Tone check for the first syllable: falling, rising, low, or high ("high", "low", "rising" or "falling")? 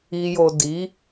low